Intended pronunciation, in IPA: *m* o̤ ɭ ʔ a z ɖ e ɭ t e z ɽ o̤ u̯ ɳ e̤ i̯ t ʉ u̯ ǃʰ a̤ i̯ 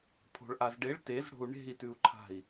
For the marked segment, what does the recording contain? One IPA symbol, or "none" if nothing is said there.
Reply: pʰ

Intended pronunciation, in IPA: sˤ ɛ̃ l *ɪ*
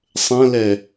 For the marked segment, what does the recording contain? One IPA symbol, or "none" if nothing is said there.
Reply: ɛ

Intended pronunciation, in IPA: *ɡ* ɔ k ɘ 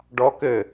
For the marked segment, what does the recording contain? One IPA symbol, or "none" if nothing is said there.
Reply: ɖ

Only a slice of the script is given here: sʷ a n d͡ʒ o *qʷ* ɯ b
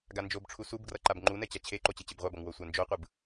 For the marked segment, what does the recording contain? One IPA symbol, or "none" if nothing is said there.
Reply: qʷ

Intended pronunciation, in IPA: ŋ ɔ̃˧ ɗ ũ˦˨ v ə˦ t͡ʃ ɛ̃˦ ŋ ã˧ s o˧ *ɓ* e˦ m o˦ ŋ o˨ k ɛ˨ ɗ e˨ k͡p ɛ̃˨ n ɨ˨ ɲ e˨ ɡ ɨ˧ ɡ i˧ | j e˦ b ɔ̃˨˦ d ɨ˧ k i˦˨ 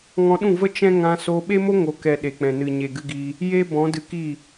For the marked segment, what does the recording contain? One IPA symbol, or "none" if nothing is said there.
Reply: ɓ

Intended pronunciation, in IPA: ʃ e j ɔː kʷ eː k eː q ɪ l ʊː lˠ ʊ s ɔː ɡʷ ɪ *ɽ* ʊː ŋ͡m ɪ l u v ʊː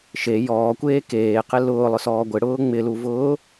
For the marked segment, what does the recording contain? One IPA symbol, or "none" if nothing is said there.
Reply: ɽ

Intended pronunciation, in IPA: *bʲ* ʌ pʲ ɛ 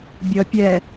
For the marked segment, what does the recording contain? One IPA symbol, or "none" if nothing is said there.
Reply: bʲ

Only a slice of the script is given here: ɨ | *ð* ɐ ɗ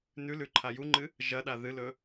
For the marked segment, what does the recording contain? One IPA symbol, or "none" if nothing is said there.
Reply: ʒ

